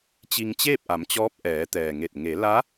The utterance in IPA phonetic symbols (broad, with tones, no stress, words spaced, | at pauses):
t͡ɕi˧ŋt͡ɕeː˥˨p̚ʔa˩˧mt͡ɕɔː˧˥p̚ ʔɛː˩˧ t̪ɛː˩ŋe˧˩t̚ ŋe˩˧la˧˥